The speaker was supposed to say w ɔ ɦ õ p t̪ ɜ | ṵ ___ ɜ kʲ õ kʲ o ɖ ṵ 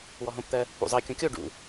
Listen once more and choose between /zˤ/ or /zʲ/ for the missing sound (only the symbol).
zˤ